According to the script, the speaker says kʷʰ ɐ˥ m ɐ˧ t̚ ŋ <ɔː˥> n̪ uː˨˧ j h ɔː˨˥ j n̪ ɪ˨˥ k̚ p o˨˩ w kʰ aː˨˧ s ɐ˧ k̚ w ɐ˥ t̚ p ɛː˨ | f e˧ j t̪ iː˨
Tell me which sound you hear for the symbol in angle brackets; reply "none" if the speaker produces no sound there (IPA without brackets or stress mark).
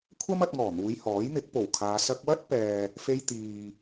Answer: ɔː˨˩